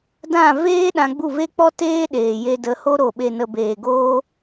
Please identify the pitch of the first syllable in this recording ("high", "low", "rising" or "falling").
falling